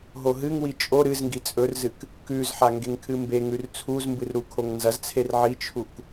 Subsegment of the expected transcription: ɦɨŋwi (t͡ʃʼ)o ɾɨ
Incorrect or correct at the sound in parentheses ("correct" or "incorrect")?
correct